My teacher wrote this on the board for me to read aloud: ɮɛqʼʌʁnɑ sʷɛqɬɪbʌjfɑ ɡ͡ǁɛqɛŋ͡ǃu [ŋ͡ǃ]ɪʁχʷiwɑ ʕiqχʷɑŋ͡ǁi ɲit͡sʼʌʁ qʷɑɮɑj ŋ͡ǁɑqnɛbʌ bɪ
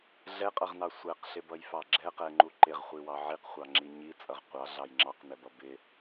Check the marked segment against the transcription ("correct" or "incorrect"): incorrect